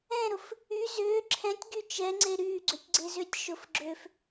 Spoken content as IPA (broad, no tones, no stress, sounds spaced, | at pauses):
ɛ̃ ɾ ʊ f | y z ʏː ǁʰ ɛ̃ tʲ ɡ y t͡ʃ ɛ ŋ͡ǀ e ɾ yː ɡ͡ǀ ø tʲ ɡ͡ǀ e z ʏː tʲ ʃ ʊ f ɡ͡ǁ ø f